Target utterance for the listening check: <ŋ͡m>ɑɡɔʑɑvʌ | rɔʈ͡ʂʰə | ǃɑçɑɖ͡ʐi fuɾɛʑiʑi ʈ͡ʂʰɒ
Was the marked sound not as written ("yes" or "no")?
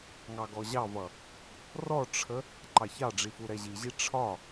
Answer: yes